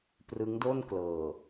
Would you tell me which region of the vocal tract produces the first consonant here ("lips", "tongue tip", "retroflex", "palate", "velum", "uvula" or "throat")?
lips